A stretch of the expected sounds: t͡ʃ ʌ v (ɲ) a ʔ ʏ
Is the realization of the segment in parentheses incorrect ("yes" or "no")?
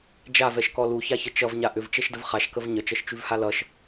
no